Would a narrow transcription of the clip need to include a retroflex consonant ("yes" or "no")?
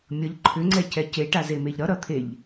yes